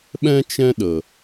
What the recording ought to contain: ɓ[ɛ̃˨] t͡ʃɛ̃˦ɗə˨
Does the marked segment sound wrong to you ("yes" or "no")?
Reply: yes